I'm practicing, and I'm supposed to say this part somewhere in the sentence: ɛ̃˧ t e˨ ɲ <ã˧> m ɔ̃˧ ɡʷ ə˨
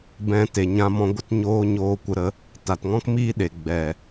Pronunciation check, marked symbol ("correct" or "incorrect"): correct